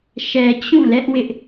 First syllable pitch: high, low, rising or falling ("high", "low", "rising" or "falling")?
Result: low